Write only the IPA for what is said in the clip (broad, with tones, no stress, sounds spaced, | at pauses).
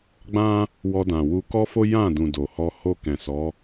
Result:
ɡ͡b ã˦ | w ɔ˧ d ã˨ w u˧ k ɔ˦ f o˦ j ã˦˨ d ũ˨ d o˨ h ɔ˧ h o˧ k ɛ̃˨ s ɔ˨˦